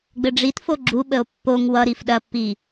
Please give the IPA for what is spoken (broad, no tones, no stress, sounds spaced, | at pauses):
ɡ͡b ɘ ɖ͡ʐ i t f o ɡ͡ǁ u ɓ ə o̯ pː o ŋ w ʌ ɾ i f ɗ ɐ pː i